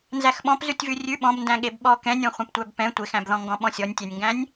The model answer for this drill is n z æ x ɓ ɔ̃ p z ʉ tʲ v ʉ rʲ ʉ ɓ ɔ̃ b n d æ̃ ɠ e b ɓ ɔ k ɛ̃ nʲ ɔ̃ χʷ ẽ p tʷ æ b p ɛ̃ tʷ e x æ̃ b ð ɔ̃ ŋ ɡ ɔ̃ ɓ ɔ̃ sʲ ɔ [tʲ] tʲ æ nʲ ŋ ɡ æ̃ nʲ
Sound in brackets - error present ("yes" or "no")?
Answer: yes